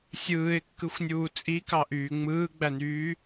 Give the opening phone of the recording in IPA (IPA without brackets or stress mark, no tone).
sʲ